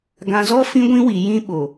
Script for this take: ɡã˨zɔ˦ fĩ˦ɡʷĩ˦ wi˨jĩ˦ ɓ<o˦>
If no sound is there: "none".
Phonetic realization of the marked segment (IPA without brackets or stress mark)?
o˨